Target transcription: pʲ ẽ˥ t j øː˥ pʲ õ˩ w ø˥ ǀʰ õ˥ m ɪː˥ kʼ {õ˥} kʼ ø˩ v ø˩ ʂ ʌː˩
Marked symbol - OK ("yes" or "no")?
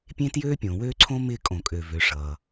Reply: no